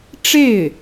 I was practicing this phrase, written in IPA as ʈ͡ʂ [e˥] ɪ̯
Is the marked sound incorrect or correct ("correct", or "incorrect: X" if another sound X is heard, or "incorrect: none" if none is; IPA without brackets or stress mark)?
incorrect: e˥˩